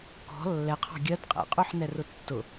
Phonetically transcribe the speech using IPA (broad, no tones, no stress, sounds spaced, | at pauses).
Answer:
k ɔ̤ lː ɛ qʰ ɑ̤ ɡʲ ɜ d qʼ ɛ̰ qʼ u ħ n ɛ r ʊ tː ʊ